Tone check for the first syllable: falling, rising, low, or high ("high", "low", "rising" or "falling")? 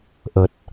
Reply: low